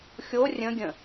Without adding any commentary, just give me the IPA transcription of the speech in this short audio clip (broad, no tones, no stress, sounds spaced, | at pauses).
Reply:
xʲ o rʲ ə̃ ɡʲ ə̃